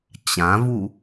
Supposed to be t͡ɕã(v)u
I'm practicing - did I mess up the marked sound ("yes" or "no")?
no